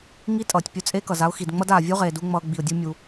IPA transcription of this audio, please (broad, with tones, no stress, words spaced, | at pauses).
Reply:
ŋi˦tʼʌː˨tʲpʲu˧ t͡sʼe˦kʌ˨za˦ʊ̯xi˨d ŋ͡mʌ˦d aː˨vʲu˦ʁeː˨ du˦ ŋ͡mʌː˧ɡ͡bi˨ʊ̯dʲu˦mʲu˧